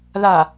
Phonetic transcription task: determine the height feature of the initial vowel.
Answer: low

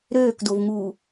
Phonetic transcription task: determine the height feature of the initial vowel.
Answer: mid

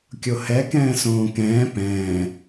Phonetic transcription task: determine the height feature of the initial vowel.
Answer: mid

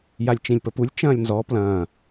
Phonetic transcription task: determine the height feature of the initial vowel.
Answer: low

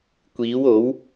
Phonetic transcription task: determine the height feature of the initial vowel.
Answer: high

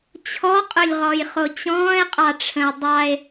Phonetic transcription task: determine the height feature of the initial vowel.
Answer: mid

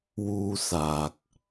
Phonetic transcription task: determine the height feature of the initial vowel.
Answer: high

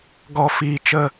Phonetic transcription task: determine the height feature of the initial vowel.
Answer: mid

